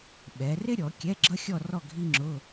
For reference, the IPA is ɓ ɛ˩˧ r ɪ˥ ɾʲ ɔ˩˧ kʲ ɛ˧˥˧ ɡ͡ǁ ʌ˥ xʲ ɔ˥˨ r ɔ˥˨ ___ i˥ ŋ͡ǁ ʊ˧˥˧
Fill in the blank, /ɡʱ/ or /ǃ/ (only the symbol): ɡʱ